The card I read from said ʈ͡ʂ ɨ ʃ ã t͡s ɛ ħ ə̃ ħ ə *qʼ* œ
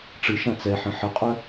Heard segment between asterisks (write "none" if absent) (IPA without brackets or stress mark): qʼ